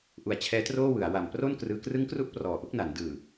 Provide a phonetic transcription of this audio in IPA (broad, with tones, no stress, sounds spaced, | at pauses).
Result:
ʔ u˩˦ a̯ t͡ɕʰ ɛː˦˥ t r oː˥˩ w ɯ˩˦ a̯ w a˨˩ m p r o˥˩ n k r ɯː˧ k r ɯ˦˥ ŋ k r u˦˥ ʔ p r ɔː˨˩ ʔ u˦˥ k̚ n a˩˦ n d ɯː˨˩